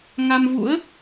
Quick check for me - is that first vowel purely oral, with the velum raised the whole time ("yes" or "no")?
yes